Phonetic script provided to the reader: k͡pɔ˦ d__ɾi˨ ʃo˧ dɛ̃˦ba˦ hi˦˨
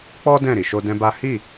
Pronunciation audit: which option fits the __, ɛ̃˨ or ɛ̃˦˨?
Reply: ɛ̃˦˨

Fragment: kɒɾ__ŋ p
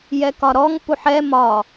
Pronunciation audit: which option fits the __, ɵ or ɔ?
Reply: ɔ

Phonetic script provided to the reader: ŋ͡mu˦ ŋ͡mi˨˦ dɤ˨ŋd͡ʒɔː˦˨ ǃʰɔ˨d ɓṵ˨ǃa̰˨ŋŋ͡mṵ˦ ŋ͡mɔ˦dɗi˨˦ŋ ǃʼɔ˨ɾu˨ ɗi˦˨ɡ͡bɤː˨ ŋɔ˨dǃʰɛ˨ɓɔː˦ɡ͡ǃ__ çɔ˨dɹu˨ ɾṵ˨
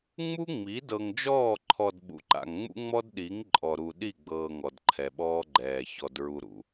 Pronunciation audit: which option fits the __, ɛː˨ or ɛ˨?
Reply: ɛː˨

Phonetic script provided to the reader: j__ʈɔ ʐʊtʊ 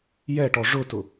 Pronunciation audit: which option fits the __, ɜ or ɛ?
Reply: ɛ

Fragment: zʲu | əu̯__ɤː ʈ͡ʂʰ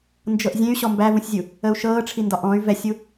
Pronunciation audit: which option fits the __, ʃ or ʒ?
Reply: ʃ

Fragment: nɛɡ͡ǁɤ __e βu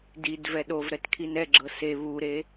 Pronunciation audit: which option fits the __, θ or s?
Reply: s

